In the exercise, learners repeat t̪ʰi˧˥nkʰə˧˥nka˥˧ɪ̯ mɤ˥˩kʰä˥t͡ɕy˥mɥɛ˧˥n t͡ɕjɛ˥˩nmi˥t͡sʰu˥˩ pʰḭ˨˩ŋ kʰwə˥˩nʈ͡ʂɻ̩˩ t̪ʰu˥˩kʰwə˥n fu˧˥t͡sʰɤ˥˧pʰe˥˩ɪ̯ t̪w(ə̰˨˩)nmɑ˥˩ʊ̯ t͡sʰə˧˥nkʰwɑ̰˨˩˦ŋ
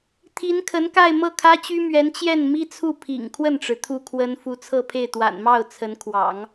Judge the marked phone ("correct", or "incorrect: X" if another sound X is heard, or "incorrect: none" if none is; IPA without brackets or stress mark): incorrect: a̰˨˩